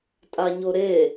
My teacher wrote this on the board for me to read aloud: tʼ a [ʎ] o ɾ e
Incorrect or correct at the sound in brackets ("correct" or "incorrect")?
incorrect